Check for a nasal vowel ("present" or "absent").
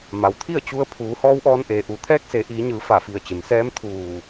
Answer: absent